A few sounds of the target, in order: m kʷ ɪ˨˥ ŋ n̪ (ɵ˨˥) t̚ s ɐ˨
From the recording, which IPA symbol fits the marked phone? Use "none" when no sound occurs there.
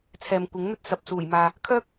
ɵ˥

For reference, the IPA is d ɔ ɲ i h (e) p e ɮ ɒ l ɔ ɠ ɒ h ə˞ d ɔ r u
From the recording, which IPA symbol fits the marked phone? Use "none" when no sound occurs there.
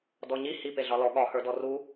i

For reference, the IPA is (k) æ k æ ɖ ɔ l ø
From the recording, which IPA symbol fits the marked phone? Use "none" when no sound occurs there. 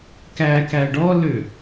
k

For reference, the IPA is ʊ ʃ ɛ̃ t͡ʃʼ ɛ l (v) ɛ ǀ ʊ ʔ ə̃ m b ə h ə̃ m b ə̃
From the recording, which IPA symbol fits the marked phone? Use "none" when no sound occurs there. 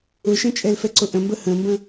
f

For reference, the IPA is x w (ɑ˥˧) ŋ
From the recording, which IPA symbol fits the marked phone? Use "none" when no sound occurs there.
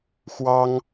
ɑ˥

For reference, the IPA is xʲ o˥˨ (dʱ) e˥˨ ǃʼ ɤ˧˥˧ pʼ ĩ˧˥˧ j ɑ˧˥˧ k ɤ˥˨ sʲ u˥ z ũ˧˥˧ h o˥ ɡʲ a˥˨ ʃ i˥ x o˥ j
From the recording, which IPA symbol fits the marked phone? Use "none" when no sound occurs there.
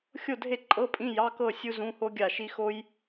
dʱ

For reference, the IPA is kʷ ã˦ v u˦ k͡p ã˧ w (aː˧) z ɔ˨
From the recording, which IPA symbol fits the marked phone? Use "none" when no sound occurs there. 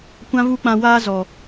aː˦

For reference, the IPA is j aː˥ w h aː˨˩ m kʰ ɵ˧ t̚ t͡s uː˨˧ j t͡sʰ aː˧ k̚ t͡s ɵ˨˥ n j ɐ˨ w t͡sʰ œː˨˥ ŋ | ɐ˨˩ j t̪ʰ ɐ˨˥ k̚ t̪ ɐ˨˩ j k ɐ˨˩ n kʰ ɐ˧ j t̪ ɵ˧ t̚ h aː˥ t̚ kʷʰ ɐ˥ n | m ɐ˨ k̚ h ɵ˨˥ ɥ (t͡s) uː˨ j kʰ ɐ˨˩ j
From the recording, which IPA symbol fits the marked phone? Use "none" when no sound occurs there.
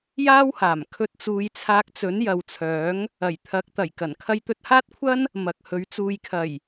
t͡s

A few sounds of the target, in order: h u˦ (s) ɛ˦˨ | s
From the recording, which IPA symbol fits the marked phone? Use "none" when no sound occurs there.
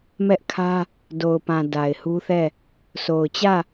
θ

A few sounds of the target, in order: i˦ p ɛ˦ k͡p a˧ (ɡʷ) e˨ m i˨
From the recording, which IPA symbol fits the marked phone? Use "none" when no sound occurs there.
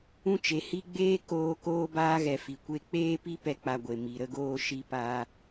ɡʷ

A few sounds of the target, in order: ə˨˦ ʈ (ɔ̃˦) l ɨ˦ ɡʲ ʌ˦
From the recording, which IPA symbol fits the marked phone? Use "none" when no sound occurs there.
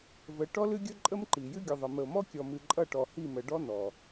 ɔ˦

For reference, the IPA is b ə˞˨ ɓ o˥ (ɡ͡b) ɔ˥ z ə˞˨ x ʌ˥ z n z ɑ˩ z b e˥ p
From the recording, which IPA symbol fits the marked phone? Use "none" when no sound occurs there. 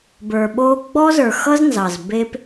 ɡ͡b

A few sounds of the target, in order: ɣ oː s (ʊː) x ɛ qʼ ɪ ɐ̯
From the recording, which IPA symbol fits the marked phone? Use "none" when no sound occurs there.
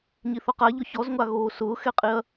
ʊː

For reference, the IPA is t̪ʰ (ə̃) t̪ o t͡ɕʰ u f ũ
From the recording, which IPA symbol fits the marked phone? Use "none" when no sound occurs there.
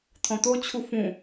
ɔ̃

